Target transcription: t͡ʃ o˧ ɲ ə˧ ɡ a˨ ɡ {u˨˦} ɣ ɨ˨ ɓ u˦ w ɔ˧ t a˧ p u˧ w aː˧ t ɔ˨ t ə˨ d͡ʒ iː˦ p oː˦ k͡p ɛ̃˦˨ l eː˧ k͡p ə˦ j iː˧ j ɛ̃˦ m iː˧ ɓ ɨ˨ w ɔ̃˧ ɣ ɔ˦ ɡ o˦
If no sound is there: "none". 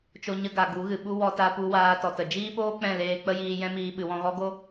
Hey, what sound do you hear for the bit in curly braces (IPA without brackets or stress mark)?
u˨˦